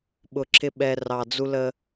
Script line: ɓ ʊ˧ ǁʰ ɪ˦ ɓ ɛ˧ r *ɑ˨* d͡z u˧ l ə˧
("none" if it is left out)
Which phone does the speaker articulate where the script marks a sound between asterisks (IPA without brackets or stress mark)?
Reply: ɑ˨